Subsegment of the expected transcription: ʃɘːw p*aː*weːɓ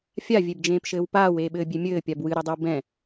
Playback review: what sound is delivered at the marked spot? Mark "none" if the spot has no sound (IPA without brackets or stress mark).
aː